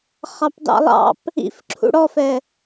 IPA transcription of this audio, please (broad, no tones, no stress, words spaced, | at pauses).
χɑpdɑ̰lˠɑ̰p | ḭf ǁʰṵɽɔfɛ